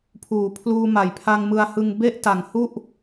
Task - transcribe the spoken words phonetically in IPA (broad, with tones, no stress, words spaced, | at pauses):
pʰuː˩˦ pʰluː˧ ma˩˦jpʰa˧ŋmɯ˧a̯hɯ˧ŋ be˥˩ʔta˨˩ŋhu˥˩ʔ